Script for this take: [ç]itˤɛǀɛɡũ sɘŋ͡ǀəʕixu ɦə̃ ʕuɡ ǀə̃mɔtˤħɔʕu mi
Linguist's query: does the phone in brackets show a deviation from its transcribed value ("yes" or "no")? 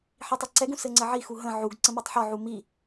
yes